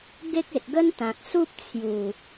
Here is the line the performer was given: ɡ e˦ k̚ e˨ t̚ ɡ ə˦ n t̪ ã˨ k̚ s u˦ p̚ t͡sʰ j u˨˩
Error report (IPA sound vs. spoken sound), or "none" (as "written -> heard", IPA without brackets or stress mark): none